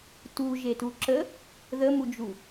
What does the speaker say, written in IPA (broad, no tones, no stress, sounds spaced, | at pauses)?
t u ʒ e t u ǁ ə | ð ə m u d͡ʒ u